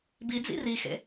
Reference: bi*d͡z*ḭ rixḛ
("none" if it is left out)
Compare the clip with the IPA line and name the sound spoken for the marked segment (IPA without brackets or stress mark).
d͡z